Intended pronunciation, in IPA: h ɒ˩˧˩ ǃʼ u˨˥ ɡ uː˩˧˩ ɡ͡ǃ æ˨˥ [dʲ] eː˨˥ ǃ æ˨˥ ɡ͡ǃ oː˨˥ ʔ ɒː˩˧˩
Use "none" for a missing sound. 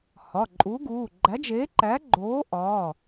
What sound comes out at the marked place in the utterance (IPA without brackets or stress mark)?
d͡ʒ